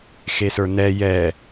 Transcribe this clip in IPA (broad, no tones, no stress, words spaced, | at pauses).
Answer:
xesə˞nɛ jɛ